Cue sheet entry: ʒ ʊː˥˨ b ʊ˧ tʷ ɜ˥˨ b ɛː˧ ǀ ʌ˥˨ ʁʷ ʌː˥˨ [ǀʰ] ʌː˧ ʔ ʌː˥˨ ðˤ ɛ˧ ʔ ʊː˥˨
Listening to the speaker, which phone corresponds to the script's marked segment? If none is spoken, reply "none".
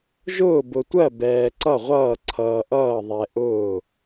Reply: ǀʰ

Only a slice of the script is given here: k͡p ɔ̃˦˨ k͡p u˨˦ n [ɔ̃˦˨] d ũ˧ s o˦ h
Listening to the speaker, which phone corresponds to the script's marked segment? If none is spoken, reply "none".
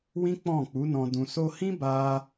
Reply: ɔ̃˧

